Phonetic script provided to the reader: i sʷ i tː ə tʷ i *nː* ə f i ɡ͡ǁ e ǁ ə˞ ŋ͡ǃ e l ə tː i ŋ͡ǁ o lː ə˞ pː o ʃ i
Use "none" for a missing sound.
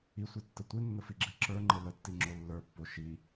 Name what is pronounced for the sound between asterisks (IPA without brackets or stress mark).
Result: nː